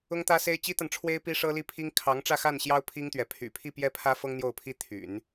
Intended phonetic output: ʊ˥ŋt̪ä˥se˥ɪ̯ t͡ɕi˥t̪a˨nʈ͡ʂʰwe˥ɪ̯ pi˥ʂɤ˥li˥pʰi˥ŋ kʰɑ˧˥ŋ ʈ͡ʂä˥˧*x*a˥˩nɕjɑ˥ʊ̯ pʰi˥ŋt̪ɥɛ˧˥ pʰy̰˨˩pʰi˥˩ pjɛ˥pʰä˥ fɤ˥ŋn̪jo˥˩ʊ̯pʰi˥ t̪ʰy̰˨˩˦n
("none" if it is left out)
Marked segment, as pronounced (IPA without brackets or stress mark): x